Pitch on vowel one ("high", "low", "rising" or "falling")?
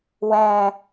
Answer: high